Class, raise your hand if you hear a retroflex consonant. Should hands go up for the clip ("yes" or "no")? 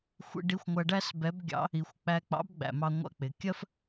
yes